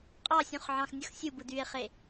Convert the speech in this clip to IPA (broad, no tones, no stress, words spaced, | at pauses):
qʼɑsʲũχʕɑ̃xnʲɯx sʲubɯdye̯χe